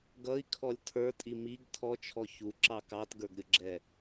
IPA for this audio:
ɡ ʌ i̯ kʰ ɔ lʲ tʰ ə˞ tʼ i m i ɡ tʰ ɔ t͡ʃʰ ɔ ç u ǁ ɑ k ɑ t ɡ ə˞ ɡ ɾʲ ʊ ɡ͡ǁ ɛ

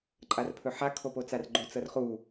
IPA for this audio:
ǃʼ a r pʰ ɵ ħ a kʰ o p o t͡s a r ɡ͡ǃ o t͡s ɤ r χ u

